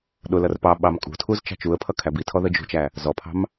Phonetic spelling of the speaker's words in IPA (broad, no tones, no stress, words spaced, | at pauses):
ɗʊlʌr pɑɓɑm kʼṳtʰuz t͡ʃɑ̤t͡ʃuə̯pʰʌ kʰæbitʰɔ ðəd͡ʒṳt͡ʃæ | zɔpʰɑ̤m